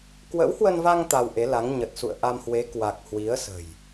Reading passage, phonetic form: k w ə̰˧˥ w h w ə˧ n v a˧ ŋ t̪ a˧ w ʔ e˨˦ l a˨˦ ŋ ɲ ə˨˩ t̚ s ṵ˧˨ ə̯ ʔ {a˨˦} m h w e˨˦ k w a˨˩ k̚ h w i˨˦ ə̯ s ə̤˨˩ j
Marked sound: incorrect: a˧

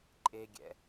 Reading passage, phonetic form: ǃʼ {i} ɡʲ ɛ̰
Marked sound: incorrect: e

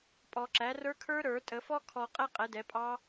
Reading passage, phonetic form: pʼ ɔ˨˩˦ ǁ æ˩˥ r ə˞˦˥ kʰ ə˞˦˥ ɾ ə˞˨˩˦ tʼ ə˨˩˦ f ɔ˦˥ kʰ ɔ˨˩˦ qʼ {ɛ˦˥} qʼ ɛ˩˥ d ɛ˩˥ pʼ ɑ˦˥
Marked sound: correct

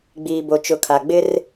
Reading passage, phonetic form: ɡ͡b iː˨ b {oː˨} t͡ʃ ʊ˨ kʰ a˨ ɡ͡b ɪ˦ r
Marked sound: incorrect: o˨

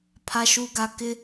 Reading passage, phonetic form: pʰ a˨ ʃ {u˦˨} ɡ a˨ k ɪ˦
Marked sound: incorrect: u˨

